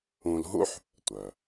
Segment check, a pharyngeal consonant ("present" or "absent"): present